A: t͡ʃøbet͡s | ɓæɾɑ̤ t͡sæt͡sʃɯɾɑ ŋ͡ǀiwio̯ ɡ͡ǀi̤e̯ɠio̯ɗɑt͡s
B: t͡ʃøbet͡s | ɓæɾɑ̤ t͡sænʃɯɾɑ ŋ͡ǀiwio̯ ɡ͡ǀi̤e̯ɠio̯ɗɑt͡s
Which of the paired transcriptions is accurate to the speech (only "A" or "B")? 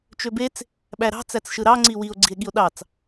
A